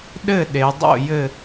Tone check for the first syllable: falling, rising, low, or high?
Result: falling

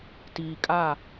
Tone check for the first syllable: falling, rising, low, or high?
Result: low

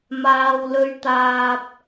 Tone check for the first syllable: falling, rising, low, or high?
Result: low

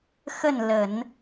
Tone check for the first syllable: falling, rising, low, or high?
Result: falling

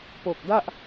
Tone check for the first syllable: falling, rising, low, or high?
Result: low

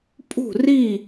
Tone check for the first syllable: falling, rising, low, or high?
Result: falling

